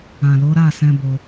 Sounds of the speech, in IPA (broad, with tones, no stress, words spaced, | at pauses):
ã˨lo˨˦ ɾa˦˨ sɛ̃˧ bo˧